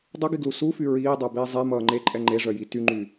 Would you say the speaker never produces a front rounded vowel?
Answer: no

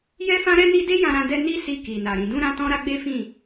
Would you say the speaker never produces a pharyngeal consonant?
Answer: yes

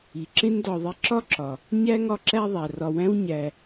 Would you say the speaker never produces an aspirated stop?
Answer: yes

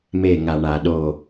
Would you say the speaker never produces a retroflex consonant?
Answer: no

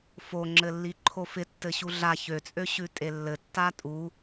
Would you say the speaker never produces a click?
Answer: no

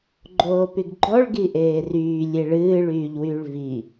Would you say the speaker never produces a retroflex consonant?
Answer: no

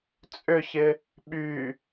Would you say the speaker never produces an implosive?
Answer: no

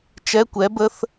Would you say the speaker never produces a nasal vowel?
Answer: yes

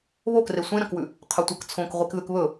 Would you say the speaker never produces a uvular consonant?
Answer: no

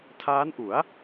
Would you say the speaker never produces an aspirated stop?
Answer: no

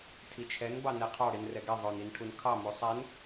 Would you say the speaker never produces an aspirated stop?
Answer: no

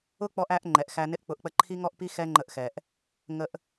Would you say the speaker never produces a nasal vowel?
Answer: yes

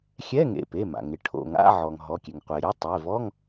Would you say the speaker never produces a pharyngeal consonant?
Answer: no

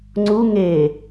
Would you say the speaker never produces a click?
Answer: no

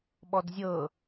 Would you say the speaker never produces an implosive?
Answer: no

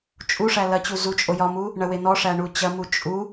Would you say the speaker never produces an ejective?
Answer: no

